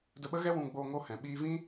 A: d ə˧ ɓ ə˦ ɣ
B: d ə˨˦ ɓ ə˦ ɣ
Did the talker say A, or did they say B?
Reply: A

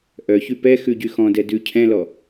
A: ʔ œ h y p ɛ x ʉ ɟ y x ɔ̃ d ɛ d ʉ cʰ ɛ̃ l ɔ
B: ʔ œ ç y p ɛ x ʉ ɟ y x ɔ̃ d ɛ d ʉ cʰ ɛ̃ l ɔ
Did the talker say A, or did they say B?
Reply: B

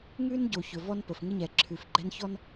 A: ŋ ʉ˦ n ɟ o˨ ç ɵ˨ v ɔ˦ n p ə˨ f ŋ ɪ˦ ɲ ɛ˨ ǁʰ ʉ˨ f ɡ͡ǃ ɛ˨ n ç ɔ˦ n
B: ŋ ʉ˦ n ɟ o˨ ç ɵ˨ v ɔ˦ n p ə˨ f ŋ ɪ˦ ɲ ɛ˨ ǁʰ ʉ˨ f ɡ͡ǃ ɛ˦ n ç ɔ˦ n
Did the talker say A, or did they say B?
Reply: B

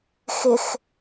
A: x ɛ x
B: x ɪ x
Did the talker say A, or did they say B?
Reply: B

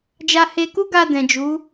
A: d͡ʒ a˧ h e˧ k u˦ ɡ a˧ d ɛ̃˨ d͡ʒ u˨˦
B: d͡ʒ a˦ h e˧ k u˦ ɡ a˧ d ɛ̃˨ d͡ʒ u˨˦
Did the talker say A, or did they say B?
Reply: A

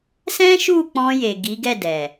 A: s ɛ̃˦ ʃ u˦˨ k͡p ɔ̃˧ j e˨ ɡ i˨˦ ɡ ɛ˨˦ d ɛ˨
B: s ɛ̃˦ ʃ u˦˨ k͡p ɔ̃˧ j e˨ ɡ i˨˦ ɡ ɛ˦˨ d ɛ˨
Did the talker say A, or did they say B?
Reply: B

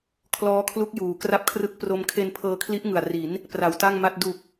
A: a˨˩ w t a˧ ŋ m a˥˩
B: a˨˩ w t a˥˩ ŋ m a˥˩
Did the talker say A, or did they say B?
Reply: B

